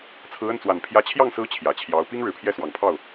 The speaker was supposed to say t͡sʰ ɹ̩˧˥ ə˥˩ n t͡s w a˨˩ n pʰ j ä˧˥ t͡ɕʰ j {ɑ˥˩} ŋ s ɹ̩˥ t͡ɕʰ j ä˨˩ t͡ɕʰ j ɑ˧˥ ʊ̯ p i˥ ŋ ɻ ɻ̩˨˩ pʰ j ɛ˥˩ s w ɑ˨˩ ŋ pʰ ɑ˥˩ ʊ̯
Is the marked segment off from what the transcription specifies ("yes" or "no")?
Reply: no